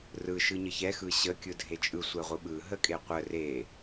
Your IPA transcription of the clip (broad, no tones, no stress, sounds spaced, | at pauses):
r ɯ ʃ ɯ ɲ ə ç ɛ x ɯ ɕ ə kʲ ɯ dʱ e t͡ʃʼ ɯ sʷ ɛ ʁʷ ɯ ɓ ɯ ɦ ə kʼ e qʷ ə r e